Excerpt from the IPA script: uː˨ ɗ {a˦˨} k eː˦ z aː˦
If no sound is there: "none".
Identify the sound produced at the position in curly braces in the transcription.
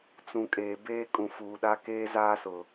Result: a˦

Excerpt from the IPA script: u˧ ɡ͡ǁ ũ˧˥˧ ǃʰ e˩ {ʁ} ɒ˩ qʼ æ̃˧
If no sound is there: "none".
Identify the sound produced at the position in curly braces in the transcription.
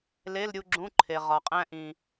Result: ʁ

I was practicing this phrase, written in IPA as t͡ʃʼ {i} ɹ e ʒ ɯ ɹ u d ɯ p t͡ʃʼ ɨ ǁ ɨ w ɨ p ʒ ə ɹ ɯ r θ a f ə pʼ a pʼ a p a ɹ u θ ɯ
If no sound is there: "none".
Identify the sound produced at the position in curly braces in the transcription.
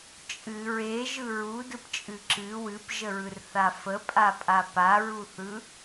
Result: ɨ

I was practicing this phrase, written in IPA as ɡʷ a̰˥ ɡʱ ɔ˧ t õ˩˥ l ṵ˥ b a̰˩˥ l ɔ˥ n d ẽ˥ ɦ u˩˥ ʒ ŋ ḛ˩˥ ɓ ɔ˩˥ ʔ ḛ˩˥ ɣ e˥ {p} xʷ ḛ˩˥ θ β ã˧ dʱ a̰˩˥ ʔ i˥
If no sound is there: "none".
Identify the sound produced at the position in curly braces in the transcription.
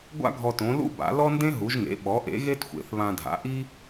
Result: t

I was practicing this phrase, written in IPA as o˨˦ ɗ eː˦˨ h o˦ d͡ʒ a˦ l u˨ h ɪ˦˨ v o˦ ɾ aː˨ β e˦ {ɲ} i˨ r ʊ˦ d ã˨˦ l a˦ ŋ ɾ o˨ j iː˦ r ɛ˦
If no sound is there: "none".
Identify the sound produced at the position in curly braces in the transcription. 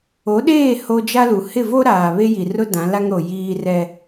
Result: j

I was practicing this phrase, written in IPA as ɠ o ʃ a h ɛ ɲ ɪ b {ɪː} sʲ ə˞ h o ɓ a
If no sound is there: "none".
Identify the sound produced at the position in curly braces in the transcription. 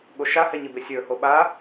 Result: ɪ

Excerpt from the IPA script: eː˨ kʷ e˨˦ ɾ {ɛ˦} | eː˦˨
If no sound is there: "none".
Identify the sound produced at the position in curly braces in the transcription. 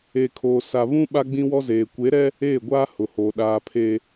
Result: ɛ˦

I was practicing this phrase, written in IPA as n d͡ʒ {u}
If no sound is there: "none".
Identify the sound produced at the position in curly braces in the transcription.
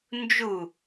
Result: u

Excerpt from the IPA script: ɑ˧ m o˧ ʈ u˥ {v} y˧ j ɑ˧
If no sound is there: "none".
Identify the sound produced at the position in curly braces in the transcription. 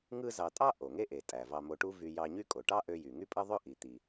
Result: v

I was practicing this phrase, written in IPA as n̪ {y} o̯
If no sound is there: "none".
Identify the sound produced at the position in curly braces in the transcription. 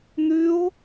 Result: y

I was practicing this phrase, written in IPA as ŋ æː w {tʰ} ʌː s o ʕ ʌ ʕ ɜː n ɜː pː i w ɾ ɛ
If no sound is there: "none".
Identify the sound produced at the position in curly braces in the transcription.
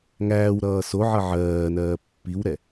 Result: ɾ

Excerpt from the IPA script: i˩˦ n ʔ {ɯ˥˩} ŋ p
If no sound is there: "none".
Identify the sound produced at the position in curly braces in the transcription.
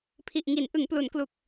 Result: ɯ˩˦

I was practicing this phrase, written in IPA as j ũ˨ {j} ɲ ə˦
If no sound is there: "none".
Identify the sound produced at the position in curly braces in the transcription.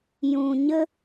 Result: none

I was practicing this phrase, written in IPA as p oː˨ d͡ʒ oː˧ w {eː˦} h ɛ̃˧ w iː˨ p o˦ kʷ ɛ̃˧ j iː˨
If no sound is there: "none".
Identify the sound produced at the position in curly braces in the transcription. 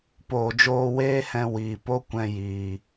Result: eː˦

